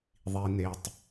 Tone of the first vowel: low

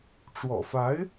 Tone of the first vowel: low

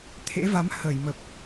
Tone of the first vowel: rising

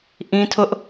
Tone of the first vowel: high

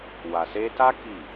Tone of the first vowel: low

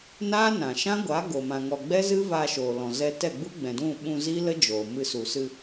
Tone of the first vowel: high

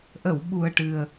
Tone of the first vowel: low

